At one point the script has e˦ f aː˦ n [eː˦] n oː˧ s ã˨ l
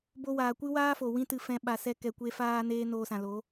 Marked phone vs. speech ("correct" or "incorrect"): correct